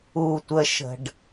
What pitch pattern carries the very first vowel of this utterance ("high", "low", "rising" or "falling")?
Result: low